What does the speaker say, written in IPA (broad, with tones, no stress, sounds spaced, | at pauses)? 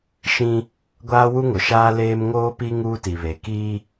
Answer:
ʃ ĩ˦ | ɡʷ aː˦ w u˦ ŋ ʊ˨ ʃ aː˦ l eː˦ m ŋ oː˦ p i˦ ŋ uː˦ t i˨ β e˨ k iː˦